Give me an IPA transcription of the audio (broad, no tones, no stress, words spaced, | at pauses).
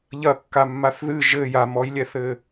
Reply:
ʎɐkːamːaθ ðɨ ʒɘ jamɔjlʲɛθɘ